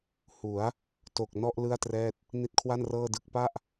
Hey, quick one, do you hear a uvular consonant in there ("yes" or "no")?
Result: no